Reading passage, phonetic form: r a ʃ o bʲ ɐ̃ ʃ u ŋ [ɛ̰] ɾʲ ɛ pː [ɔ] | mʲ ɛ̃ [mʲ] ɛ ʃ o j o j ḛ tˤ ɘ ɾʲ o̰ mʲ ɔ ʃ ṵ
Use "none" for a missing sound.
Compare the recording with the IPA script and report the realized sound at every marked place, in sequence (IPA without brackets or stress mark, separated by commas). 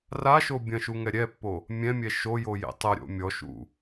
ɛ, o, mʲ